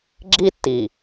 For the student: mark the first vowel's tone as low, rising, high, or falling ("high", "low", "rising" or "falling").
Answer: high